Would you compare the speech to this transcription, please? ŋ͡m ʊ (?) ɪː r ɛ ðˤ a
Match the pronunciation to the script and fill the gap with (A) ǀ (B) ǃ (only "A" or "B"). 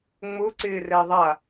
A